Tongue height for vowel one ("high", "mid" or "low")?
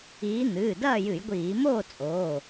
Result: high